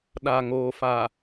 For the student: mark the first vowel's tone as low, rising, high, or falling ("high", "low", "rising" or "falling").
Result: low